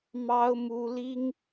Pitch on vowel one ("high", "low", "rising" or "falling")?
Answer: high